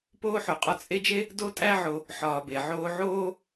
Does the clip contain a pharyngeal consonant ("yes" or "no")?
yes